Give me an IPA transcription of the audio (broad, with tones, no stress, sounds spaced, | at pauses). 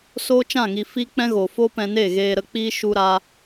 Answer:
s oː˦ t͡ʃ ã˦˨ ŋ i˨ f i˦ k͡p ɛ̃˦ ɣ o˨ f o˦ p ɛ̃˧ n e˦˨ ɣ eː˧ ɾ ə˧ k͡p iː˦ ʃ u˦ ɾ a˦